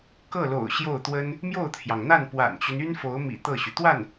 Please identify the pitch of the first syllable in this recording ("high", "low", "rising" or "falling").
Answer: falling